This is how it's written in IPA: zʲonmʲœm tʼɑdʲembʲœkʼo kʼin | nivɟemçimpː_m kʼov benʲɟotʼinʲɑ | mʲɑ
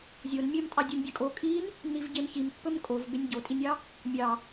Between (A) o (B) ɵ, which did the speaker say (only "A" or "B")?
B